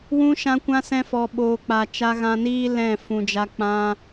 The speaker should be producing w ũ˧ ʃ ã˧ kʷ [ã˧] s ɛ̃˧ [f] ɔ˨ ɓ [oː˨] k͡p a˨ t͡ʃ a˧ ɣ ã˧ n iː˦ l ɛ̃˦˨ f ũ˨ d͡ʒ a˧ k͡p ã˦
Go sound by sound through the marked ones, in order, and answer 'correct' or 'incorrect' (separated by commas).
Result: correct, correct, correct